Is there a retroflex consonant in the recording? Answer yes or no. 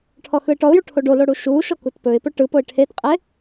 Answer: yes